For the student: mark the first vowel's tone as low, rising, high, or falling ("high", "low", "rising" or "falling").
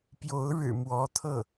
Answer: rising